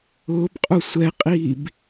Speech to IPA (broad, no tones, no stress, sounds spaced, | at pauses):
ʊː b qʼ u sʷ ɛ qʼ iː b